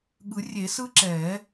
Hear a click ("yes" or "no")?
yes